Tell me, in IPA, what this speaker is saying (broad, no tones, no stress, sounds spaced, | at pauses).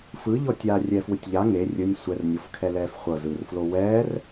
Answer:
f ɯ ʎ ɔ tʲ aː rʲ ɛː f w ɯ tʲ ʎ a ŋ e rʲ ɯ nʲ sʷ ɛ r nʲ ɤ f kʰ ɛ l ɛː f χʷ ɤ z ɯː r f l o w ɛː r